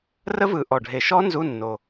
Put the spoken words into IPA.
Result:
r ə˦˥ v ɯ˨˩ ʔ ɔ˨˩ ɖʱ e˨˩ ʃ ɔ˦˥ n z u˧˥˧ nː o˨˩

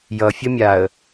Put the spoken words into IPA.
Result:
j ʌ fʲ ə mʲ a ə̯

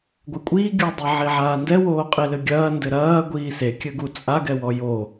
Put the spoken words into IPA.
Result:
ɡʷ ɛ kʷʼ iː ɡʲ u dˤ i ʕ i ʕ aː n d ɛ w oː qʼ i l ɘ ɡʲ ɐː n d ɘ ɾ ɐː ɡʷ iː s e kʲ ɘ ɡ u t͡sʼ a ɡ ɛ w ɔ j o

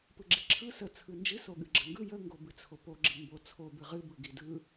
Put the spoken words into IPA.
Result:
p ɯ ɡ͡ǁ i ǁʰ ɯ s ə t͡sʰ ɯ n d͡ʒ ɨ s o ɠ ɨ ɡ͡ǁ ə ŋ ɡ ɯ j ə ŋ ɡ o b ɨ t͡sʰ o p o ɡ͡ǁ i m b o t͡sʰ o b ɨ ʁ ɨ b ɯ ɡ i d ɯ

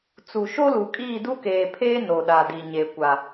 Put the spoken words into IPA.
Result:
t͡s u˨ ʃ o˦ l u˨ kʼ iː˦˨ d u˦ k eː˨ pʰ eː˦ n o˨ ɗ a˨ d i˨ ɲ e˨ kʷ a˨

